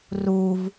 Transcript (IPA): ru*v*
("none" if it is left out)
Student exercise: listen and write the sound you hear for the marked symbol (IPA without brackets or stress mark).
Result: v